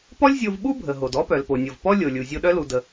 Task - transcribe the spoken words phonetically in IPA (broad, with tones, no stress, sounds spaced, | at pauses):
p ɔ˥ lʲ zʲ o˧ v ɓ u˥ bʱ ə˩ ɦ o˩ d ɔ˥ p œ˩ l p o˩ nʲ o˩ v p ɔ˥ lʲ o˩ lʲ u˩ zʲ o˧ ɗ œ˥ l u˩ d ə˩